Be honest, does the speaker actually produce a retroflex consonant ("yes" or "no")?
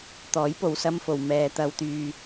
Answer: no